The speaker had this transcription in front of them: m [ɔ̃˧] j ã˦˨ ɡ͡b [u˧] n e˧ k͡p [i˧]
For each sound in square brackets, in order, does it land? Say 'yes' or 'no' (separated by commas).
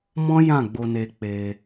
no, no, no